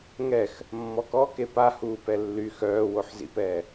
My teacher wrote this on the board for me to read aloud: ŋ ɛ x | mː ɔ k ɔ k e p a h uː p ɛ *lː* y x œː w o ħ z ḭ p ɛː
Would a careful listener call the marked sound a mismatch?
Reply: no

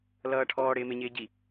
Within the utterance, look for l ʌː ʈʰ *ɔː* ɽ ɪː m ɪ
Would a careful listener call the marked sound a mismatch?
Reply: no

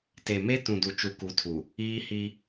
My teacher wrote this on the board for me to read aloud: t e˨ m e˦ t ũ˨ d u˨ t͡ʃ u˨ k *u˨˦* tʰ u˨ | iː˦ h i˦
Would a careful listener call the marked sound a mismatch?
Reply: no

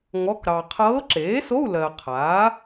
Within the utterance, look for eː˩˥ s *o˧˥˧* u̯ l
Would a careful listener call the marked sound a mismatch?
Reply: no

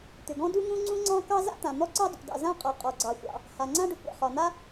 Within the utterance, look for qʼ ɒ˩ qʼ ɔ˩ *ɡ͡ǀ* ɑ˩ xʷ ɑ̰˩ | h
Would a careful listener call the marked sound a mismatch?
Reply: no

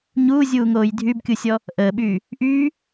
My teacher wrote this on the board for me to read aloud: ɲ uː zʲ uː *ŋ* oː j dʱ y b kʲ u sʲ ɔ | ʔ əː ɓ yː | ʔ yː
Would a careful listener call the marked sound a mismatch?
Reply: no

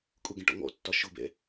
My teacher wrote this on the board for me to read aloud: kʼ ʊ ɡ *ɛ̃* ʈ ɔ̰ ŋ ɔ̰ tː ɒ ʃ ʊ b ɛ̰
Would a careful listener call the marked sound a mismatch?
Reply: no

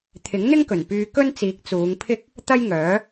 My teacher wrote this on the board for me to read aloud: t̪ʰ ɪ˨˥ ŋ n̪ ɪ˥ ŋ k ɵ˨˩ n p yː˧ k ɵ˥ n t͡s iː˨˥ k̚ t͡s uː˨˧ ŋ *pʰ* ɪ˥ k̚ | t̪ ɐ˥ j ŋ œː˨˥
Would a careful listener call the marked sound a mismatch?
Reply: no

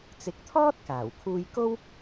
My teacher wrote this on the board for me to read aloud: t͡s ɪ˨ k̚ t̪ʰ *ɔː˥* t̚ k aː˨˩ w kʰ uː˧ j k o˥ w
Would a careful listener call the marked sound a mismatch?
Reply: no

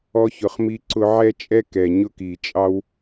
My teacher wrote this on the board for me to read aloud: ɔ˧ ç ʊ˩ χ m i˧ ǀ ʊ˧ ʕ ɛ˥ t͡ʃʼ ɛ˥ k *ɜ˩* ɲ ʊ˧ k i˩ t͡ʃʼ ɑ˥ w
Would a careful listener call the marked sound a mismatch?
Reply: yes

